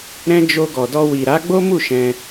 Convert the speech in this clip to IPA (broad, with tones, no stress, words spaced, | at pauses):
ɾɛ̃˦ d͡ʒo˧ɡɔ˨dɔ˧ wi˨ɾa˨˦ɡ͡bo˦mu˦˨ ʃɛ̃˧